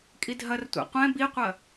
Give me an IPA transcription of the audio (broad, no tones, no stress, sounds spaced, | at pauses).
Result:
kʼ i dʱ ɐ r tʷ ɛ̰ qʷ ɛ̃ b i qʷ ɐ